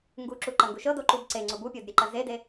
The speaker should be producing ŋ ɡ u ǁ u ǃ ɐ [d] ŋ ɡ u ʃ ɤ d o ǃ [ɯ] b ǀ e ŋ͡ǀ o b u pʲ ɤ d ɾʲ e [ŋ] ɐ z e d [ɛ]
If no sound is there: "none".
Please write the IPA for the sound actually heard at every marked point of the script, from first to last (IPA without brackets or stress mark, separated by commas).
none, u, ǃ, e